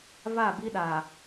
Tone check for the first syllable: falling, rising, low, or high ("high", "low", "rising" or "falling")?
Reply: falling